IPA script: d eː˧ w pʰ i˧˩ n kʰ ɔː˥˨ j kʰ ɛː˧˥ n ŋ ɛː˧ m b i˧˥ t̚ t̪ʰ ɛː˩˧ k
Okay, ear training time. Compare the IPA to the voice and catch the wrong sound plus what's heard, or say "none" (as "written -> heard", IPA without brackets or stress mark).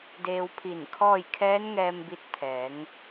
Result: k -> ŋ